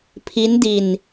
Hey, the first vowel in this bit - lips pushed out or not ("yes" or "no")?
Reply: no